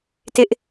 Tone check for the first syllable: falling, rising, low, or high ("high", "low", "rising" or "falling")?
high